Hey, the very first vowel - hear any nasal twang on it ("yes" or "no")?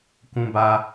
yes